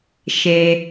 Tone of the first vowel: low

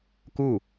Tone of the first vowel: falling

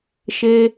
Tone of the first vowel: high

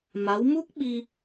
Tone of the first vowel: rising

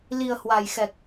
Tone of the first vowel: low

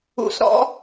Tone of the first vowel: rising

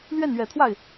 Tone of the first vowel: falling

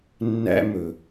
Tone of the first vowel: high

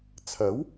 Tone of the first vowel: rising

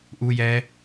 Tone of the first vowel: high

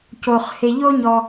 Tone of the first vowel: low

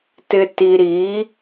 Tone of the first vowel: low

